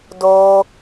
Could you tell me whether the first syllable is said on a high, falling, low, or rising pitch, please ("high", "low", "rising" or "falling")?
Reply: high